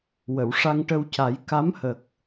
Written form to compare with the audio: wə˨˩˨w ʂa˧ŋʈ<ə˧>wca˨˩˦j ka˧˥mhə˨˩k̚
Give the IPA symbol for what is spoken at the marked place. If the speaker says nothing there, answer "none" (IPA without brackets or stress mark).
ə˧